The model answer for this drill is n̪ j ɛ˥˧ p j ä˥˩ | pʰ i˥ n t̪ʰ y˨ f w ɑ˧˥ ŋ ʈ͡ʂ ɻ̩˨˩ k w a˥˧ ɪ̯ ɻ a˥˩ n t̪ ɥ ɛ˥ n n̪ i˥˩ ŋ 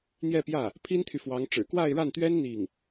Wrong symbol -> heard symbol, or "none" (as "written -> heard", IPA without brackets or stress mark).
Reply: none